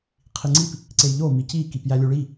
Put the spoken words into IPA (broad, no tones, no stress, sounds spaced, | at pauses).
qʰ i ŋ͡ǀ i p | ǀ e j ʎ o m i c i k i p j æ lʲ u ɭ i